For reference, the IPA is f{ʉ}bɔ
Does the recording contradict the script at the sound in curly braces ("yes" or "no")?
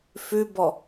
no